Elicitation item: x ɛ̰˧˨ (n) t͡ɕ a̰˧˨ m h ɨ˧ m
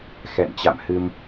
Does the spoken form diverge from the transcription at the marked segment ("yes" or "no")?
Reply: no